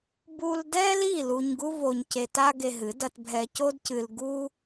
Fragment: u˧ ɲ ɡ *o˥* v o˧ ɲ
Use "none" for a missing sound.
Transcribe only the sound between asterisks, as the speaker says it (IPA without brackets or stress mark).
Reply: u˥